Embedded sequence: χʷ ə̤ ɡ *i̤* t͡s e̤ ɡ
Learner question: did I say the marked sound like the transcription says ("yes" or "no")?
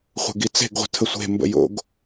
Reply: no